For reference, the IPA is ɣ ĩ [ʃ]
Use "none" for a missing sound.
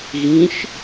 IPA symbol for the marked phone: ʃ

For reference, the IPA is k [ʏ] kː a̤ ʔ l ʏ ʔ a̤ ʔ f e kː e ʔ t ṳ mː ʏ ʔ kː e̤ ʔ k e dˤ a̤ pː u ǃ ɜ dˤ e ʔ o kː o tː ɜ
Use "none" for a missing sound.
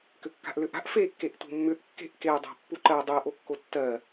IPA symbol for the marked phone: ʏ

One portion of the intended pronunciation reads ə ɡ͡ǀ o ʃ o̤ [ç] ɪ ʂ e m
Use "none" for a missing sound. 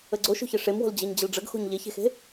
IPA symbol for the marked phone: ç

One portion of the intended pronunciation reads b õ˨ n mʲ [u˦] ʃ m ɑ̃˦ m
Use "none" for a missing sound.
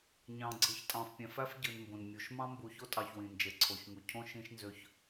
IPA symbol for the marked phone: u˨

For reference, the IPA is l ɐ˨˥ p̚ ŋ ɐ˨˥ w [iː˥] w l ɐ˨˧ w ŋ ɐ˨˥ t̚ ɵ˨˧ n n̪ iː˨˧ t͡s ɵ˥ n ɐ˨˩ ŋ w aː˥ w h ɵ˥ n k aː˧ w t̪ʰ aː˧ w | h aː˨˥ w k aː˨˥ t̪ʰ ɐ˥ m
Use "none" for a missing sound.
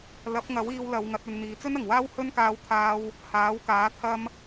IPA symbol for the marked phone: iː˧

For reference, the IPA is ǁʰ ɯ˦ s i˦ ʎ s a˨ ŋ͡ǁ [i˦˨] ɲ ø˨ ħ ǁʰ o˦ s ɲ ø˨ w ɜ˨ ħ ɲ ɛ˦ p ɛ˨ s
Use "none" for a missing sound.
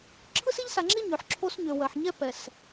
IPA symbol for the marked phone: i˦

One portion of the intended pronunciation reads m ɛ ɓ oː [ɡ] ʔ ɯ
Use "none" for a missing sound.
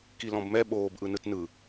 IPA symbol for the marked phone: b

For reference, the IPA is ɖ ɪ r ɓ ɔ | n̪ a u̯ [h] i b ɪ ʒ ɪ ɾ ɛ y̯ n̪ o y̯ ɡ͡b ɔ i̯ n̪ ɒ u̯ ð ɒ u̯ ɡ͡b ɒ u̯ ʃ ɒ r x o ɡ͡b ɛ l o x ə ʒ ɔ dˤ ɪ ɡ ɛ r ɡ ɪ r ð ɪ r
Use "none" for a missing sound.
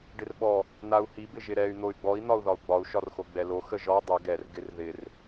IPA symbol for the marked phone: h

